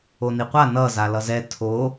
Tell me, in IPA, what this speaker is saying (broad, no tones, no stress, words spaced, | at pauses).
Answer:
oniqʷa nʌ zalʌzɛ tʰo